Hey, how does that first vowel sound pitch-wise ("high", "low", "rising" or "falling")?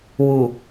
low